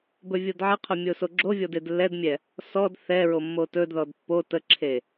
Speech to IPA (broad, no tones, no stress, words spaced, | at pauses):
bɵvʲodʕəqʰɵ mʲosoɡ͡ǁovʲɔd edlːɛdmʲɛ | sɔd θɛɹo mːotɵdðɔd pːo təǁʰe